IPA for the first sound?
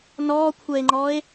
n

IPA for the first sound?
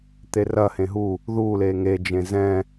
t̪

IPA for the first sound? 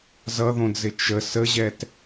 z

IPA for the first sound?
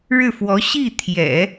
ɻ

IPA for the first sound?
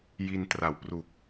j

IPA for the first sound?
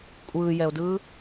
kʷʼ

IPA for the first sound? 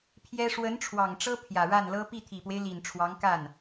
pʰ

